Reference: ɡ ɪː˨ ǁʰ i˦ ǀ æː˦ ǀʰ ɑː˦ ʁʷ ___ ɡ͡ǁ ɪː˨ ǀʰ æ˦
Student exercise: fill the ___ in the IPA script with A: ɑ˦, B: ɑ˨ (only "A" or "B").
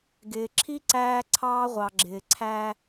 B